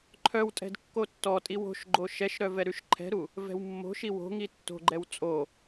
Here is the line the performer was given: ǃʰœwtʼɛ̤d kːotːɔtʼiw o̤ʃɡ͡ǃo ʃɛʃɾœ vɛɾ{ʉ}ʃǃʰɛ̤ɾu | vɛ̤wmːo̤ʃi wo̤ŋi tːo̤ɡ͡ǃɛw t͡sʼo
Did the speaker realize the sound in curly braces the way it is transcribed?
yes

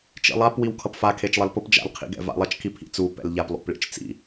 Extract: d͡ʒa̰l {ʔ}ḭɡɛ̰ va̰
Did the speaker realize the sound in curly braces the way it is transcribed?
no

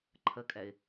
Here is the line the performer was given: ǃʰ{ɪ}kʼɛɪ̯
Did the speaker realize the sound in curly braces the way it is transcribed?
no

